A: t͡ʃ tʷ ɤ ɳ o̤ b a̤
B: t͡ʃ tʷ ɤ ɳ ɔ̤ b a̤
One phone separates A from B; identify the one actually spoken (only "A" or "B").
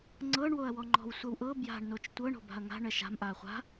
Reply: A